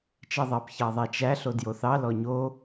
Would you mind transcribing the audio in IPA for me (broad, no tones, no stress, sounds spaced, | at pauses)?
t͡ʃ ɛ ðˤ ɑ p ç ɑ ðˤ æ t͡ʃ æ ɬ o d j o θ ɑ l ɔ ɲ o